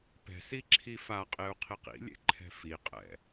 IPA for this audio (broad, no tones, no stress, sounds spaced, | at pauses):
p ɛ̤ s i ǁʰ i f a qʼ e u̯ qʰ i q ḭ lʲ ḛ ǃʰ ɛ̤ f i qʼ ɛ̰